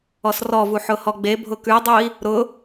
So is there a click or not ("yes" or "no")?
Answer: no